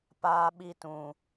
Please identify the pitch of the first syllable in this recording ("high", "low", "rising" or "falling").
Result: high